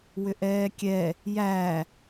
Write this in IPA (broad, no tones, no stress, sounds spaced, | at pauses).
w ʏ ʔ ɛː kʲ ɛ | j æ